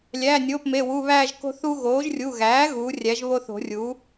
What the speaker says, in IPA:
lʲ æː˩˧˩ nʲ oː˩˧˩ p m e˩˧˩ w u˩˧˩ β æː˦˨ ʒ k o̤˦ θ u˦ ɣ oː˩˥ ʒ rʲ u˩˧˩ ɣ æː˩˥ ɣ uː˩˥ rʲ æ˩˥ ʒ β o˦ θ o̤˨˩˦ rʲ u˩˥

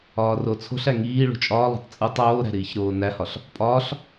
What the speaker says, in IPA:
ɒː r o t͡sʰ o̤ ɬ æ ŋ iː ɭ ṳ t͡ʃʼ ɒː lˠ o̤ tˤ t͡sʼ u tˤ oː ɾ æ̤ ɾ iː ç ɾ oː n æ h ɒ ɬ | pʼ ɒː ɬ

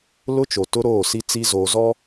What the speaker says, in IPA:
l ʊ˦ t͡ʃ o˨ t ʊ˦ ɾ oː˦˨ s i˦ t͡s i˦ z oː˨ z ɔ˦

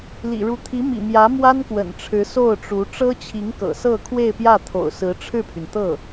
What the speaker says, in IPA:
l ḭ˨˩ ɻ u˧˥ t̪ʰ i˧˥ m ḭ˨˩ m j ä˧˥ m w a˥ n k w ə̰˨˩ n ʈ͡ʂʰ ɻ̩˧˥ s o˥˩ ʊ̯ ʈ͡ʂ u˧˥ ʈ͡ʂ ɤ˥ t͡ɕʰ i˧˥ ŋ k ɤ̰˨˩ s ɤ˥˧ kʰ w e˥˧ ɪ̯ p j ä˥˩ t̪ʰ o̰˨˩ ʊ̯ s ɹ̩˧˥ ʈ͡ʂʰ ɻ̩˥˩ pʰ y˩ n t̪ ɤ˥˩

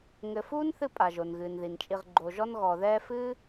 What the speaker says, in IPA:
ŋ ɘ˨ f uː˥ n θ ɨ˦ pʼ a˩ ʒ o˩ n ɣ ɨː˩ n ð i˩ n t͡ʃʼ i˨ ʁ ɡ͡ǃ o˨ ʒ ɔ˦ n ɣ ɔ˨ ð ɛː˦ f ɨː˥

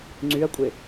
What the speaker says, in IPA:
ŋ͡ǀ y ɐ̯ kʷʼ e

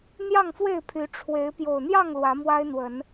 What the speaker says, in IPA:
n̪ j ɑ˥˨ ŋ f w e˥˨ ɪ̯ pʰ y˨˦ ʈ͡ʂʰ w e˨˦ ɪ̯ p j o˨˩ ʊ̯ n̪ j ɑ˥˨ ŋ l w ä˨˦ m w a˦ ɪ̯ n̪ w ə˨˦ n

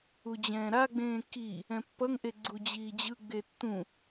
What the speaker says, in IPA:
u d͡ʑ ɛ̃ː ɾ a ɡ͡b ẽː k i | ɛ̃ pː ʌ ŋ ʔ e ɡ͡ǀ u d͡ʑ iː d͡ʑ ɯ ɡ͡b e tː ũ

